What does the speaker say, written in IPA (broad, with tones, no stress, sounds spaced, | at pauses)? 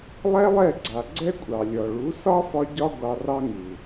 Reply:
lˠ ɛ˦ lˠ ɛ˦˨ ɡ͡ǀ a˨ ɡ͡ǀ ɛ˦ kʷʼ ɑ˨ lʲ ɔ˨ ɭ u˨˦ s ɒ˦ f ɒ˧ ɟ ɒ˦ ɡʷ ɑ˧ r ɑ˦ ŋ u˨